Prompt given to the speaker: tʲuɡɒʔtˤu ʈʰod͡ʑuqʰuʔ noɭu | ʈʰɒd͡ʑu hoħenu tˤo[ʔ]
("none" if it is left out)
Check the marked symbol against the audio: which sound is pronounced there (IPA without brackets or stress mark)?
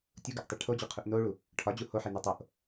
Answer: ʔ